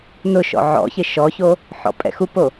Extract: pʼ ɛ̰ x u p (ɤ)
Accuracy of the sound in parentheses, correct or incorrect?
incorrect